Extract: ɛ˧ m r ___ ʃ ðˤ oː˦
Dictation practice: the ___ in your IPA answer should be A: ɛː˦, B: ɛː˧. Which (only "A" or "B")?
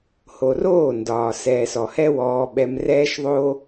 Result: A